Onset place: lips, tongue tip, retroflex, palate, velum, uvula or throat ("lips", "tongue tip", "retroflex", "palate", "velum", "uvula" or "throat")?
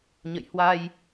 palate